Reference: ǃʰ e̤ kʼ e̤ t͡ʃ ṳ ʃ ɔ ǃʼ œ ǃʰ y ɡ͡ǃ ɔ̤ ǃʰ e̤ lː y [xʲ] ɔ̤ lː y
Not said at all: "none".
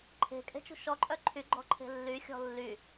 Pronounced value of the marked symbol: xʲ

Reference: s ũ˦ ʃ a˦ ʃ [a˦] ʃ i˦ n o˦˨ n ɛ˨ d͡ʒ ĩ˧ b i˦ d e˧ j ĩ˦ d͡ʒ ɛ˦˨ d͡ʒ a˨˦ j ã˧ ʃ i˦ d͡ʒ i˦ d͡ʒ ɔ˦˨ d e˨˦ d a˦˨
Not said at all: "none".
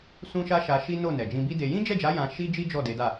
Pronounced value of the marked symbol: a˧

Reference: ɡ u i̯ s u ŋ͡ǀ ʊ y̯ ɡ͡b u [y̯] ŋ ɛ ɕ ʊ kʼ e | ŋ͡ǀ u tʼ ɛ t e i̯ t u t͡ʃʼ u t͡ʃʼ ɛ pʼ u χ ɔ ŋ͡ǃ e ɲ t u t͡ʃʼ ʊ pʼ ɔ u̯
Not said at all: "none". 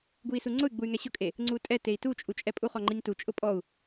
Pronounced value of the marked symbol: y̯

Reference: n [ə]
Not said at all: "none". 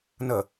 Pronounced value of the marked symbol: ə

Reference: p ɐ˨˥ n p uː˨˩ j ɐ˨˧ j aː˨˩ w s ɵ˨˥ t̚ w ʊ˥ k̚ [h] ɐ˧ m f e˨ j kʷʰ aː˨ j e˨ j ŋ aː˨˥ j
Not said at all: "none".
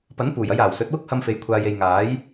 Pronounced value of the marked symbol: h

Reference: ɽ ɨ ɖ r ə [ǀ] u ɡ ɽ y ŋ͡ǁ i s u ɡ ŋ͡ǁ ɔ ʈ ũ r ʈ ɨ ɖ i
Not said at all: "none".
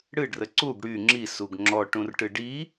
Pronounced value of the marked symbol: ǀ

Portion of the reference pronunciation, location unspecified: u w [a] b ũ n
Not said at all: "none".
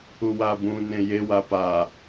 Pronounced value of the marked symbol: a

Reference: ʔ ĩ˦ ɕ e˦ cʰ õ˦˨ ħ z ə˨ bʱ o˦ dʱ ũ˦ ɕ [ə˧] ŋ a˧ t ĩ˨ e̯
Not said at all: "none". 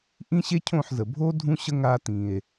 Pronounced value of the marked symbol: ə˦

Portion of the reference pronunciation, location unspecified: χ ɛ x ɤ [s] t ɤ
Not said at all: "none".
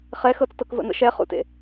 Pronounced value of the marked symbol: t͡s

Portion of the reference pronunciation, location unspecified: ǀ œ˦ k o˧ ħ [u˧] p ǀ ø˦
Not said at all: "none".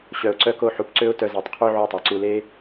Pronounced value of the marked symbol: u˧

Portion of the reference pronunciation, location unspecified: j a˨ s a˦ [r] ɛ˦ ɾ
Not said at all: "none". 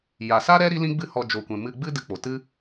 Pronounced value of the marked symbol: ɾ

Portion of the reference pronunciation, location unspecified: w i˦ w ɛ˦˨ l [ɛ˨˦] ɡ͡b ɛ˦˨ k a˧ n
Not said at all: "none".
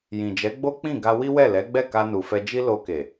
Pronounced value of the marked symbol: ɛ˨˦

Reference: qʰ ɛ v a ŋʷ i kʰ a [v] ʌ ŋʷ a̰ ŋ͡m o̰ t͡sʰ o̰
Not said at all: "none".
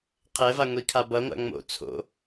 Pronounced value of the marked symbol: b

